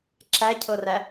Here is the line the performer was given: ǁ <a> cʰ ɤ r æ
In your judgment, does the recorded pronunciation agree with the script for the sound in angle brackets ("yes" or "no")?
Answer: no